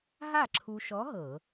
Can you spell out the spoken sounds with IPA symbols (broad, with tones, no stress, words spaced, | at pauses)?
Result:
ɦa˥˨ǁʰu˧ʃɔ˧˥ ɦɤ˧˩˧